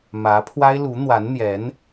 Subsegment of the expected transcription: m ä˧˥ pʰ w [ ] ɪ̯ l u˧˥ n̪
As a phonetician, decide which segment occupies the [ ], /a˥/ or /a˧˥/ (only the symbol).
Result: a˥